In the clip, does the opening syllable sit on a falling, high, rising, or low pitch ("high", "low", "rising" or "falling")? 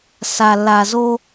low